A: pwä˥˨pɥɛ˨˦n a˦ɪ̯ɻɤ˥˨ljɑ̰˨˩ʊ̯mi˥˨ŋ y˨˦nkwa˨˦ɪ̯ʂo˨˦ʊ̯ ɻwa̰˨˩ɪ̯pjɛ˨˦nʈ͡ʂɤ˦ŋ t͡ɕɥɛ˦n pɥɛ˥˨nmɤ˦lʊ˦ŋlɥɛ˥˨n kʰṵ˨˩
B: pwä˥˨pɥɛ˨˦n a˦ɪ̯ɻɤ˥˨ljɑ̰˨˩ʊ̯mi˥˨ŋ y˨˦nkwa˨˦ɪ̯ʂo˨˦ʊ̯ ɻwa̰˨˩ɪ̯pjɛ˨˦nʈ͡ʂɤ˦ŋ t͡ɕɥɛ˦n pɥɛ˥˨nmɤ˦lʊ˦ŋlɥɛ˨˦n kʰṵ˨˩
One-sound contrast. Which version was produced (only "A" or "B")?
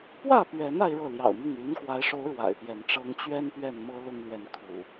B